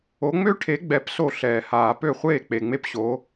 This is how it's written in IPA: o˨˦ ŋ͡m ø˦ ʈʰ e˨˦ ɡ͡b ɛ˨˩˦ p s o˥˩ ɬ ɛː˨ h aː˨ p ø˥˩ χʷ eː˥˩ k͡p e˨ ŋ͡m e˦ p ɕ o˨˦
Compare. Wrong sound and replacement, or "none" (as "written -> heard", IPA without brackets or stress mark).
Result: none